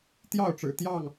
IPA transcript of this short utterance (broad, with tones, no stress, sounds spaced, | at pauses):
t̪ j ɑ˥˨ ʊ̯ ʈ͡ʂ ɻ̩˨˩ t̪ j ɑ˥˨ ŋ